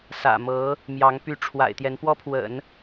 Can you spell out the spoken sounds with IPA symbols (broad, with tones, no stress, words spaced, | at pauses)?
sä̰˨˩mɤ˧˥ | mjɑ˧˥ŋ py˧˥ʈ͡ʂʰwa̰˨˩ɪ̯ t̪jɛ˧˥npwɔ˥pʰwə̰˨˩˦n